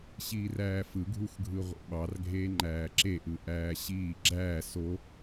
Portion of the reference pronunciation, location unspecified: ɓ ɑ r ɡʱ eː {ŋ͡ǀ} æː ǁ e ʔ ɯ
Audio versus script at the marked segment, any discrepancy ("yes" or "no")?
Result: yes